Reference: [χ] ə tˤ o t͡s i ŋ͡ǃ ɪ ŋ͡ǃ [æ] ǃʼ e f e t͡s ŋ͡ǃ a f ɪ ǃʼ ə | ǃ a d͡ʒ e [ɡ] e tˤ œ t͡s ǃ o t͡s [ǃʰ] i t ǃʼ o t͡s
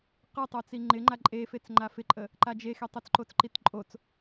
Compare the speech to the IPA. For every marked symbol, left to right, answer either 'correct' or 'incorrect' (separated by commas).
incorrect, incorrect, incorrect, incorrect